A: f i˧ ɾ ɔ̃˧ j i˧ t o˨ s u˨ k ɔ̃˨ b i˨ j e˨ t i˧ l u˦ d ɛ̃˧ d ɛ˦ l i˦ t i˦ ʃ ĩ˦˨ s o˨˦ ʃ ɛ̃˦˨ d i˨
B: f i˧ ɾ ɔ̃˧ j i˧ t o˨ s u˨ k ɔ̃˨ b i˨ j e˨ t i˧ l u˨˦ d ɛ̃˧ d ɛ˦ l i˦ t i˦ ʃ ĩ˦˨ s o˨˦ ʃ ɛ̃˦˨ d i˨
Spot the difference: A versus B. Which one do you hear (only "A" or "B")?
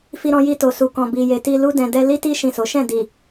A